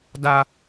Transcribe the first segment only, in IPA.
d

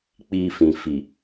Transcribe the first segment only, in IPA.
k͡p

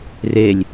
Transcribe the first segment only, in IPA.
r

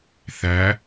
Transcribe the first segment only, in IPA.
θ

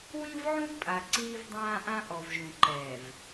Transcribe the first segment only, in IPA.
w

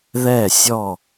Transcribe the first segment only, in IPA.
ð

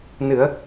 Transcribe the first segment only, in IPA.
n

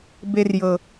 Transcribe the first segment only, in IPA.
b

